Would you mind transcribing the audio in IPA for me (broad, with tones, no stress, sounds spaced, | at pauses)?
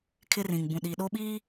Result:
kʰ ɪ˦ r ĩ˨ ŋ b ũ˨ ɗ i˨ ɗ o˦ ɓ i˦